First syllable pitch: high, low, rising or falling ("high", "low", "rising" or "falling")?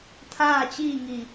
falling